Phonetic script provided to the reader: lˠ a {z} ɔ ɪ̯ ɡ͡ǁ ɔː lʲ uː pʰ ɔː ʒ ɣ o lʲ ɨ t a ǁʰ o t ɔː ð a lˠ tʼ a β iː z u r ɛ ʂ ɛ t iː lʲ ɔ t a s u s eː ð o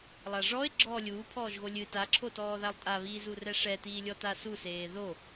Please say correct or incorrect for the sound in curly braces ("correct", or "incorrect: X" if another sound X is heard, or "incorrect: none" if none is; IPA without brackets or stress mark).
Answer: incorrect: ʐ